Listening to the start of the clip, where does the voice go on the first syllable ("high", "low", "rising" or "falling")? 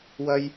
high